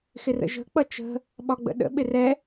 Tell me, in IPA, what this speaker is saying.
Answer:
x ɪ r ə̰ ʒ ə̤ k͡p ʌ t͡ʃ ə̤ | ɓ ɒ ɡ͡b ə̰ ɗ ə̰ ɓ ɪ r ɛ

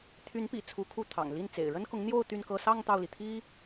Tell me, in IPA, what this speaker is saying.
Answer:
t̪ʰ y˧˥ n p ḭ˨˩ t͡sʰ u˧˥ kʰ u˥˩ t̪ʰ ɑ̰˨˩ ŋ l i˥˩ n t͡s ḛ˨˩ ɪ̯ ɻ ə˥ n k ʊ˧˥ ŋ n̪ j o˥˧ ʊ̯ t̪ y˥˧ n k ɤ˥˧ s ɑ˥˧ ŋ t̪ ɑ˥˩ ʊ̯ l i˩ t̪ʰ i˥

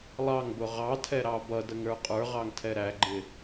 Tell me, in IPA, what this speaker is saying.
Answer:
lˠ ɑ ŋ b ʊ ʁ ɑ tʰ ɛ ɾ ɑ b ʌ d ə ŋ ɾ ə˞ qʼ ə˞ ʁ ɑ ŋ tʰ ɛ ɾ æ ɡ͡ǃ ɪ

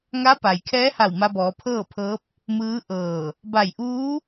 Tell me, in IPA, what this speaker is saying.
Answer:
ŋ a˧˥ p a˩ j kʰ ɛː˧˥ h a˧˩ w m a˧ b ɔː˩˧ pʰ ɤː˥˨ pʰ ɤː˧˥ p̚ | m ɯː˧˥ ʔ ɤː˧˩ | b a˧˩ j ʔ uː˧˥

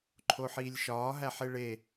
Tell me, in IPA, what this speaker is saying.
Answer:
ǃʰ o ħ iː lʲ ʃ ɒː ɦ æ ħ e ɭ e

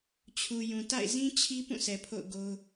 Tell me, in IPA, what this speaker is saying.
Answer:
t͡ɕʰ u˨ j ũ˨ t a̰˦˨ ɪ̯ z ĩ˦ t͡ɕʰ i˦ p ũ˦˨ sʰ ɛ˨ pʰ o̰˦˨ ʊ̯ ɡ o˦ ʊ̯

